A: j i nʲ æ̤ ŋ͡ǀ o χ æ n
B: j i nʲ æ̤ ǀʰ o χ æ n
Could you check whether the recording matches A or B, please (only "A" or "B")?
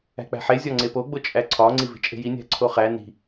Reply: B